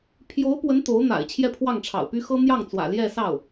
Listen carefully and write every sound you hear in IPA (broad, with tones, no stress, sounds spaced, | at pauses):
pʰ j o˧˥ ʊ̯ p w ə˧˥ n t̪ o˧˥ ʊ̯ n̪ a̰˨˩ ɪ̯ t͡ɕʰ j ɛ˥˧ pʰ w ɑ˥˩ ŋ ʈ͡ʂʰ ɑ̰˨˩ ʊ̯ p y˥ x ɤ˥ n̪ j ɑ˥˩ ŋ t͡s w ä̰˨˩ l j ɛ˥˧ s ɑ˥˩ ʊ̯